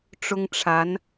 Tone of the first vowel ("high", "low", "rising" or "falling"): high